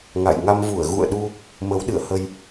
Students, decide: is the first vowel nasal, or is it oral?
oral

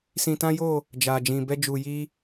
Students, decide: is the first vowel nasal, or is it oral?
nasal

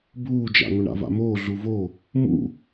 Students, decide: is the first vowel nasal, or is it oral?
oral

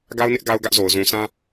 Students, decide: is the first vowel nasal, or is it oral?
oral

